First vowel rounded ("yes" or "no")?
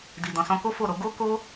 no